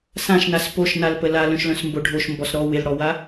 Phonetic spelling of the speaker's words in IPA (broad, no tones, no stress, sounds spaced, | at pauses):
s ã ʃ n a s p o ʃ n a l p ə l a l œ̃ ʃ l œ̃ s m b o ɖʱ o ʃ m b ɔ s ɾ ɔ w ɪ l ɽ ɔ w a